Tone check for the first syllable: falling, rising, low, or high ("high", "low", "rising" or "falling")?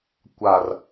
low